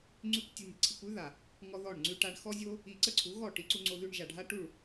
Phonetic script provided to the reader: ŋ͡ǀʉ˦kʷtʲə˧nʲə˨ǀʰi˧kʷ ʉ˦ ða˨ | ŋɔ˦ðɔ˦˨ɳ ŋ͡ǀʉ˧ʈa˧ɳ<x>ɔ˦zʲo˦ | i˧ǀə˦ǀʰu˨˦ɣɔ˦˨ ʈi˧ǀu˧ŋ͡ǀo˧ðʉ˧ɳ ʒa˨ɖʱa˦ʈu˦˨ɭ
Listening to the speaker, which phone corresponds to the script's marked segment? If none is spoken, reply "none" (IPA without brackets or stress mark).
x